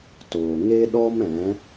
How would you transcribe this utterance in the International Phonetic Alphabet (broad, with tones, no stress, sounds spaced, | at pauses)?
t oː˨ ŋ e˦ ɗ ɔ˦ m ɛ̃˨˦